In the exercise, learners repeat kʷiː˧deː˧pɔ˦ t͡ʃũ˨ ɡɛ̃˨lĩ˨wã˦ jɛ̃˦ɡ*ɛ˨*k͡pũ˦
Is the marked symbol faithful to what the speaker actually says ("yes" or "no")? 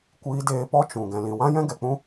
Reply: yes